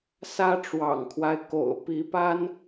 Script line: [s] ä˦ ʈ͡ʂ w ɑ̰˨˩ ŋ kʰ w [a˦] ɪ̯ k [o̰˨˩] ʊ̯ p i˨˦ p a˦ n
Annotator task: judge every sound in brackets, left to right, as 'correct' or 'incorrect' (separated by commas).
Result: correct, correct, correct